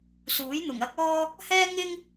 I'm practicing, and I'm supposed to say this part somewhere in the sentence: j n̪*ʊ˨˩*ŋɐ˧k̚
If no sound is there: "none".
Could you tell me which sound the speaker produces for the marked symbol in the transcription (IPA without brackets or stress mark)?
ʊ˨˩